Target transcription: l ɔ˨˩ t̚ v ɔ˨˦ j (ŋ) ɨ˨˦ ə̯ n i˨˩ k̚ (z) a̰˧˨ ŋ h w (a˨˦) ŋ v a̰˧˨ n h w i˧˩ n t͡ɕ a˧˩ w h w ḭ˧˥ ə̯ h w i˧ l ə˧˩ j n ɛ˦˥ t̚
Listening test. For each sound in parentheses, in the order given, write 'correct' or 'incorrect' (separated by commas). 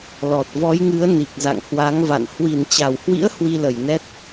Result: correct, correct, correct